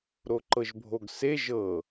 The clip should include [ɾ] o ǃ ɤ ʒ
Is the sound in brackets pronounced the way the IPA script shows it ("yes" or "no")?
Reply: yes